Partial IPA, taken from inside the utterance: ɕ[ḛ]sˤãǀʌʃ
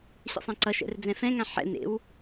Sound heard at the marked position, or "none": ɛ̰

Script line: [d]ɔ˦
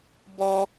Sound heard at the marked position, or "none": b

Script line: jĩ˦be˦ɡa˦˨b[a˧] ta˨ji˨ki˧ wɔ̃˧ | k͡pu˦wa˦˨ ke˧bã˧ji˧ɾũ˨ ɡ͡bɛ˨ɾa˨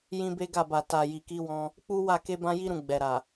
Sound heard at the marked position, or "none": a˨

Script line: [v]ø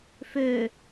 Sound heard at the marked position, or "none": f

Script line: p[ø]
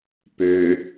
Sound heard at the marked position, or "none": ø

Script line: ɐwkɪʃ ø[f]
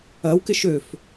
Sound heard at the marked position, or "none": f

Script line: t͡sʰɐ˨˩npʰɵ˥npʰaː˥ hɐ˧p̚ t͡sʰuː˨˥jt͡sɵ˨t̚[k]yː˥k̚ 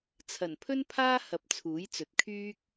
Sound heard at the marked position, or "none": kʰ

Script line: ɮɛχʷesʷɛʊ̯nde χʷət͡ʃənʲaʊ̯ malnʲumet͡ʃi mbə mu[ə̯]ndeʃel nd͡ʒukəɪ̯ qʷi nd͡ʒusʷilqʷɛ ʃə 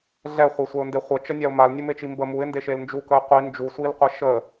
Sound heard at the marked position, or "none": ɪ̯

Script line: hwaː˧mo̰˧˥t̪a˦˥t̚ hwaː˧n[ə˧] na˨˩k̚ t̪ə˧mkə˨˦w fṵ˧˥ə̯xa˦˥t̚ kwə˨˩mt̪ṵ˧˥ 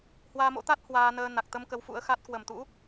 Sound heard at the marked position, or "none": əː˧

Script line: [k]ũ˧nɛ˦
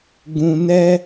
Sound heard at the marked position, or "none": ɡ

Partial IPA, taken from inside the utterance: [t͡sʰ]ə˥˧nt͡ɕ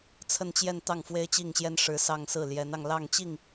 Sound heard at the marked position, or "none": t͡sʰ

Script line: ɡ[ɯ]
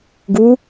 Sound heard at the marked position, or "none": u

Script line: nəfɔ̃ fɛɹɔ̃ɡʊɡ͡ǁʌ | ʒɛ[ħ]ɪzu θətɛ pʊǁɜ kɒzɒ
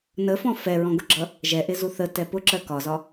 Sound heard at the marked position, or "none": ʔ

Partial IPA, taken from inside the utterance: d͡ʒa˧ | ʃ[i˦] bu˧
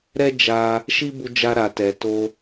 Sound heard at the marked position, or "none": i˦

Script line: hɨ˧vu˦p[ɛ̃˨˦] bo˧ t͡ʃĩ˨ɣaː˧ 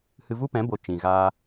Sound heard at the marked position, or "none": ɛ̃˨˦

